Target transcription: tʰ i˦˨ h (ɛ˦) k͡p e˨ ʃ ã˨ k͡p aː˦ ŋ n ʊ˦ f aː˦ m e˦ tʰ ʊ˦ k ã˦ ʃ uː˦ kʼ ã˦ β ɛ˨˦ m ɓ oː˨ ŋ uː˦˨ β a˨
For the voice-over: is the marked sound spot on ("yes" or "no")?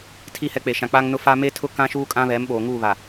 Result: yes